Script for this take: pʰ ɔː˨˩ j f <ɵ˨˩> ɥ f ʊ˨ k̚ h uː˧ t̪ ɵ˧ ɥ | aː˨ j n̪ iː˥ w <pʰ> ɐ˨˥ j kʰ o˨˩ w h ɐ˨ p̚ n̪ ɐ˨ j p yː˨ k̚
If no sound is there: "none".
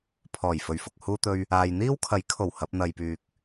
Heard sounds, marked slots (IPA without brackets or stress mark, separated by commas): ɵ˨˩, kʰ